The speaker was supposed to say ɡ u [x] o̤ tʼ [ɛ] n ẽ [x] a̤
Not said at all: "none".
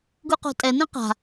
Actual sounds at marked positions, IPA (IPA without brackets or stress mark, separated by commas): q, ɛ, q